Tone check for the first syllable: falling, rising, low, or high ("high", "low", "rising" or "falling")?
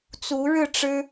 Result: rising